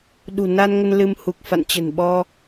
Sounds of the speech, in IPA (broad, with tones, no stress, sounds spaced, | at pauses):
ɗ ṳ˨˩ n a˧ n ŋ ə˧ n l ɨ˧ m h u˨˩ k̚ f a̰˧˨ n t͡ɕ ə̤˨˩ n ɓ ɔ˧